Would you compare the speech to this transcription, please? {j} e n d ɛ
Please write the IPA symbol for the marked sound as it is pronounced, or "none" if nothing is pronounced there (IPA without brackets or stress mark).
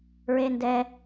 ɹ